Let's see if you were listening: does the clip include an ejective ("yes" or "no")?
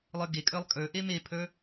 yes